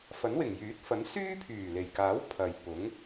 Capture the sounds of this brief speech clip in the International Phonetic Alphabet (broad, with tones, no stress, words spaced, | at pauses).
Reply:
fɐ˨˥nwɪ˨˩ŋjyː˨˥t̚fɐ˨˥n syː˥pʰyː˨˩le˨˩jkaː˨˥w pʰɐ˨j pʊ˨˥ŋ